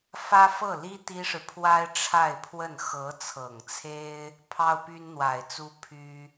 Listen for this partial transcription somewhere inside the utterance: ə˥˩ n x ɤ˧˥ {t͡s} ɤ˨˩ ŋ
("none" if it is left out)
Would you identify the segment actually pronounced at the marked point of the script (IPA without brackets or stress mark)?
t͡sʰ